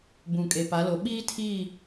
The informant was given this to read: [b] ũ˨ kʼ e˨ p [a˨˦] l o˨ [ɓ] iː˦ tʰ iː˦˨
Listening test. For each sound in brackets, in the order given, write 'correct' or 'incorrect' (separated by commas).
correct, correct, correct